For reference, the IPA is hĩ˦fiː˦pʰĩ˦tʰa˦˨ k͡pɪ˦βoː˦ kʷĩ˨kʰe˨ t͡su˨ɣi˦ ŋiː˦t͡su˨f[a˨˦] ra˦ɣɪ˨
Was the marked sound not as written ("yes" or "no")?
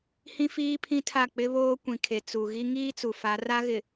no